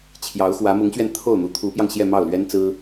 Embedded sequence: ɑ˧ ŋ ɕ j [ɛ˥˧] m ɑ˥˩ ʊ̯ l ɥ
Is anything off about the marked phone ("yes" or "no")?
no